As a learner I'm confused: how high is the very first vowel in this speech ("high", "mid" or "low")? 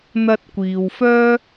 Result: low